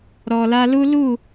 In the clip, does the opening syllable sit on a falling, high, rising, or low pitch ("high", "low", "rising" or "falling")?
low